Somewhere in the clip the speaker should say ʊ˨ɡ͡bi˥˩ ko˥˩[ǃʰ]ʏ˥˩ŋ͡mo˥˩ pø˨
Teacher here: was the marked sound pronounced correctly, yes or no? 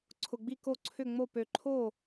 no